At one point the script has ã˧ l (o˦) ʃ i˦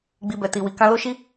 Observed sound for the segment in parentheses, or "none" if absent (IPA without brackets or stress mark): o˦